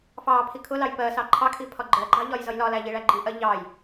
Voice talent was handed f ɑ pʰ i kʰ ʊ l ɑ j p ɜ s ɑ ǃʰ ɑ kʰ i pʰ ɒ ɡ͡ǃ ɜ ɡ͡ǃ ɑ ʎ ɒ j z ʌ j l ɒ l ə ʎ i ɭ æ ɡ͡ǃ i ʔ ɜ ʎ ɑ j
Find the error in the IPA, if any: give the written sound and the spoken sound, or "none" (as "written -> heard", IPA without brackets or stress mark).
ə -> æ